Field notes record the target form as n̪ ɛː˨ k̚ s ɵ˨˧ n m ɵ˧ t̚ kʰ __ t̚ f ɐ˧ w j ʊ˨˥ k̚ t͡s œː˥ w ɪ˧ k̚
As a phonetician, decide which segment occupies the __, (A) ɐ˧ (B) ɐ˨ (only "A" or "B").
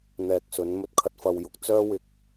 A